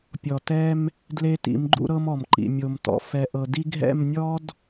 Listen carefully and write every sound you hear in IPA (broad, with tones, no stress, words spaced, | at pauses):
pʲɔ˨tɛ˦m | dle˦tḭ˨˦mɡ͡ǃṵ˦ ɾɤ˦mɔ˨mǃḭ˨ mʲo˨mtɔ̰˨ fɛ˨ ʔɤ˨di˦ɡʱɛ̰˦˨m nʲɔ˦d